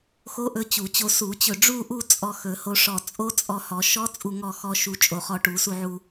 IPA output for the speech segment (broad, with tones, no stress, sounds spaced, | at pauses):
x o˦˥ ʔ ɵ˧ t͡ɕ u˨˩˦ t͡ɕ o˧ s u˨˩˦ t͡ɕ ɵ˧˩ ɖ͡ʐ u˥˧ ʔ u˥˧ t͡sʼ ɔ˧ x ɵ˨˩˦ h o˧ ʂ ɔ˧˩ t͡sʼ o˦˥ t͡sʼ ɔ˧ h ɔ˨˩˦ ʃ ɔ˦˥ t͡sʼ u˥˧ ŋ ɔ˥˧ x ɔ˦˥ ʃ u˧ t͡ʃʼ o˧˩ χ ɔ˧ ʈ u˨˩˦ s u˧ ʕ u˧